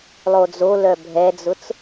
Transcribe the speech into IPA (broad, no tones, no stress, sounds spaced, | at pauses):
lˠ o d͡z o l œ bʱ ɛ d͡z ʊ t͡s